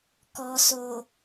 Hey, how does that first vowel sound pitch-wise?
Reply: low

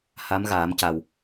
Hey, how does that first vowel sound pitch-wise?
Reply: rising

